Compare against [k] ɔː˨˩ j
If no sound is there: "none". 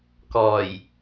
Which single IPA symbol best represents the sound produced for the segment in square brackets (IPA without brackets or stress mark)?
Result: k